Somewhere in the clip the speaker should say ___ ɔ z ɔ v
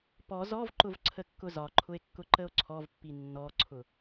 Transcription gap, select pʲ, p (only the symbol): p